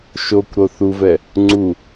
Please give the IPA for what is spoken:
ʃ o kʷ ɾ o θ u v ɛ | ŋ͡ǀ u

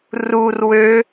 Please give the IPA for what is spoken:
r u r w ø

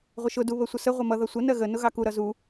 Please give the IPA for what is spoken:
ʁʷ ə ʃ ʊ d u β ə sʷ ə s ə ʁʷ ʌ m ʌ ð ʌ sʷ ə n ɜ ɣ ə n ʊ ɣ ɑ k u ɾ ʌ z u

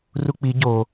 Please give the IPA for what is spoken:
r u k͡p i ɟ o

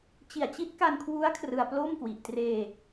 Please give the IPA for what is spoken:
t͡ɕ i˨˩ a̯ t͡ɕ i˦˥ t̚ k a˧ n kʰ w u˦˥ a̯ kʰ r ɯ˧ a̯ p l o˥˩ m k w i˨˩ ʔ t r eː˧

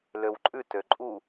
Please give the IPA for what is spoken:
l ø w ǃʼ ʉ t ø ǃʼ u

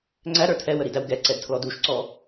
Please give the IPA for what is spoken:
ŋ͡ǀ æ ɾ ə˞ tʰ ɛ w ə ɾ i d æ w ɡ ɛ ǀ ɛ d tʰ l ɔ d u ʃ ǀ ɔ

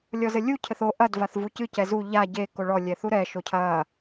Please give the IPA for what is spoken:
lʲ ɔ z ɘ lʲ u cʰ ɘ θ o ʔ ɐ d v a θ v u c ɨ c ɛ z u ʎ a ɟ e k o ɭ ɔ lʲ ɛ θ u ɾ ɛ ʃ o cʰ ɐ

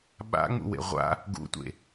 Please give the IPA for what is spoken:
ɓ a̰ ŋ͡m ṵ w ḛ ʁʷ a̰ | ɡ ṵ tʷ ḛ

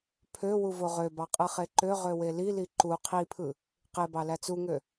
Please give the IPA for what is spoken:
pʰ ø w u v o ʁ ø b ɑ qʼ ɯ χ e ǃ ø ʁ ø w e l i l i ǃ u qʰ i pʰ ɯ | q e b ɑ l æ t͡s u ŋ ø

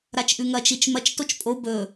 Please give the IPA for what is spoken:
ɾ a t͡ʃ ʔ ʉ ŋ ɐ t͡ʃ i t͡ʃ m ɐ t͡ʃ t o t͡ʃ pʼ o b ɵ

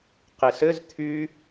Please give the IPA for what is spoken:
q e s ɘ z t̪ʰ y

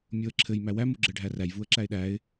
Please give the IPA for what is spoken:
mʲ o ə̯ ǁʰ ɘ j m æ w æ m u ɡ͡ǁ ɘ ɖʱ æ r æ j v u ə̯ ǁ æ ɪ̯ ɗ æ ɪ̯

